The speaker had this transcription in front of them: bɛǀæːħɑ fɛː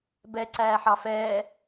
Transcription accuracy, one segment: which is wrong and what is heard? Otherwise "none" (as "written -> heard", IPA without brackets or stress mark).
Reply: none